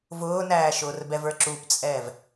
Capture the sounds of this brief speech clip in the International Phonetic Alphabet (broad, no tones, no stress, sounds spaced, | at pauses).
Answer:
v ʊː n æː ʃ ʊː r b ɛ v ə˞ ǁ u p t͡sʼ ɛː v